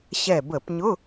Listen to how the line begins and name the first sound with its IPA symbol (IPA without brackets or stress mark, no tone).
ɕ